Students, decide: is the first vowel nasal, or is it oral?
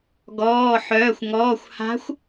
oral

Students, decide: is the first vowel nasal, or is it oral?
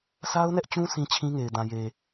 oral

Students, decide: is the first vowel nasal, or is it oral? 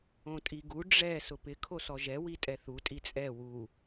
nasal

